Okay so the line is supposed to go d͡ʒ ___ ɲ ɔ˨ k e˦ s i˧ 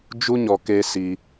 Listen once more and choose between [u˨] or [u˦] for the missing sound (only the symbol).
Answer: u˦